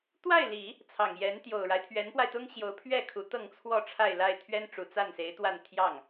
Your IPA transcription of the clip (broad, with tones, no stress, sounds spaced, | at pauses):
t̪ w a˥˩ ɪ̯ l i˨˩˦ | t͡sʰ ɑ˨˩ ŋ j ɛ˧˥ n t̪ j o˨˩ ʊ̯ ɻ a˦ ɪ̯ t̪ʰ ɥ ɛ˧˥ n p w a˧ ɪ̯ t̪ ʊ˥ ŋ ɕ j o˧˥ ʊ̯ pʰ ɥ ɛ˥˩ kʰ u˧˥ t̪ ɤ˥˧ ŋ t͡sʰ w ɔ˥˧ ʈ͡ʂʰ a˥˧ ɪ̯ l a˥˩ ɪ̯ t̪ʰ ɥ ɛ˥ n ʈ͡ʂ u˨˩ t͡s a˥˩ n s e˧˥ ɪ̯ t̪ w a˥˧ n t̪ʰ j ɑ˥˩ ŋ